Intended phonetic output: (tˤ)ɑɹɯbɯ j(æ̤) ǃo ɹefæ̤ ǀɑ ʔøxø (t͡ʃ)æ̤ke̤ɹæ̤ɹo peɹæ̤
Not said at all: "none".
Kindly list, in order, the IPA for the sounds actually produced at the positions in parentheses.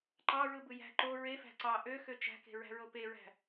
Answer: ǃ, æ̤, t͡ʃ

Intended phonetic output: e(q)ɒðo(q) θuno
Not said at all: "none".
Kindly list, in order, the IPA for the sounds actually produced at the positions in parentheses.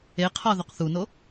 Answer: qʰ, q

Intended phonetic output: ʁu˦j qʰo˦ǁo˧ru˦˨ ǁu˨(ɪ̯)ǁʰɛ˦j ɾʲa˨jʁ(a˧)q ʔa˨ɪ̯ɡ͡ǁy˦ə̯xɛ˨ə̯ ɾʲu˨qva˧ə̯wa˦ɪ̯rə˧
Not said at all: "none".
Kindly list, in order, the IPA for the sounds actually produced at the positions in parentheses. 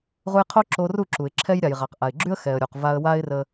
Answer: ɪ̯, a˨

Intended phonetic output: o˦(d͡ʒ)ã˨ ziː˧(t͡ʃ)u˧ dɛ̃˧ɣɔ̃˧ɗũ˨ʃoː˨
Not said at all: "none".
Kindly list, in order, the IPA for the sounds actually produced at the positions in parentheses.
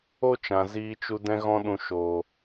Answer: t͡ʃ, t͡ʃ

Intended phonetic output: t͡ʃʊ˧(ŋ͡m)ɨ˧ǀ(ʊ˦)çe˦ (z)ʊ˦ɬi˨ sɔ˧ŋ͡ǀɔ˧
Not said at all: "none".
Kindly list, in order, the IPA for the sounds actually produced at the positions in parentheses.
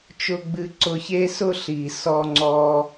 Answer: ɡ͡b, ʊ˧, s

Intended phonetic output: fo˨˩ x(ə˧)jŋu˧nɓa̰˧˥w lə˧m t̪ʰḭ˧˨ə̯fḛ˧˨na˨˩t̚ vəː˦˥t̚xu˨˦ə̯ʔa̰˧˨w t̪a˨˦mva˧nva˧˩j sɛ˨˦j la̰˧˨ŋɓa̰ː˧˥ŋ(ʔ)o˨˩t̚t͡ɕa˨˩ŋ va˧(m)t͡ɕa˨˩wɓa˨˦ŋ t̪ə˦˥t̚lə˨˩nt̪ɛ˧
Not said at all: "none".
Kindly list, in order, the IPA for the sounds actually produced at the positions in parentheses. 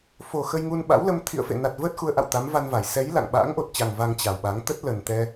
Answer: ə˧, ʔ, ŋ

